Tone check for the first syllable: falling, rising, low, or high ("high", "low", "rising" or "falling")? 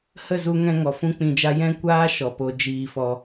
falling